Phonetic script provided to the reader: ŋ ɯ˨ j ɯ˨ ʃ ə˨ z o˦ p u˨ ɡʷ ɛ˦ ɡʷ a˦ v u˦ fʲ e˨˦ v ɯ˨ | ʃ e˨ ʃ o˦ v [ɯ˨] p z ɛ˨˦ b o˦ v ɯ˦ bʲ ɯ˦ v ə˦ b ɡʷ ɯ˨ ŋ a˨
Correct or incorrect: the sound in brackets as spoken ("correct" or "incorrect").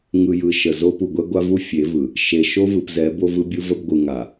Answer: correct